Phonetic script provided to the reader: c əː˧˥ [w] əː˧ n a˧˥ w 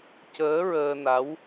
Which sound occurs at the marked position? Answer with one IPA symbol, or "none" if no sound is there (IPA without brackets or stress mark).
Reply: ɹ